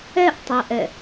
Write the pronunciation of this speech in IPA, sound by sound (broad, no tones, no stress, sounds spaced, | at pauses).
ɛ ʔ tˤ æ ʔ ɛ